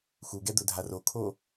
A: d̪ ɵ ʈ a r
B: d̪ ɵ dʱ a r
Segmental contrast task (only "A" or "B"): B